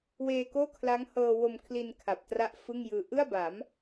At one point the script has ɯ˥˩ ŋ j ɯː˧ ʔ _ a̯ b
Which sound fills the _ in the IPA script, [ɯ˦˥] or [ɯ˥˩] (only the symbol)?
ɯ˥˩